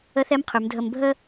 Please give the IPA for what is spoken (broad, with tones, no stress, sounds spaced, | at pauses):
ə˧˥ θ ɛ˧˥ m qʰ ʉ˩˧ m dʱ ə˧ m bʱ ə˥